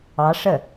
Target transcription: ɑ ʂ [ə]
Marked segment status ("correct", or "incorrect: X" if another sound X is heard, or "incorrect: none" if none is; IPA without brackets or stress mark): correct